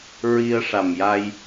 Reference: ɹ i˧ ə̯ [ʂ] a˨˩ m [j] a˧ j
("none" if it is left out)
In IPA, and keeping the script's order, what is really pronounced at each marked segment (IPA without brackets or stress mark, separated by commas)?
ʂ, j